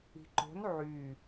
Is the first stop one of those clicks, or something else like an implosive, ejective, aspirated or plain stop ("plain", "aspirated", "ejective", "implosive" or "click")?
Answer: click